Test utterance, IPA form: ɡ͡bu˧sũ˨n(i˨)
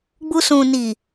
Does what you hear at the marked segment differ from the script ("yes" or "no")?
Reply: no